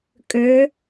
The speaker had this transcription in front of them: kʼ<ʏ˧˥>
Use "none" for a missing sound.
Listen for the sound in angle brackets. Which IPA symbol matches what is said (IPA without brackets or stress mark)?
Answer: ʏ˧˥